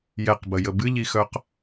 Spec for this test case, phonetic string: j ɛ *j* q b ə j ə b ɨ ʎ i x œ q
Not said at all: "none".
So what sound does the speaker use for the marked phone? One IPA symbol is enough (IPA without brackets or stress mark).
none